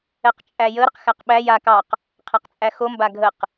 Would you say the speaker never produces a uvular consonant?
no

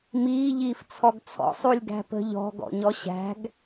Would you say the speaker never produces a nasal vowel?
yes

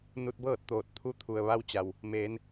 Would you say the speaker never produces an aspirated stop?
no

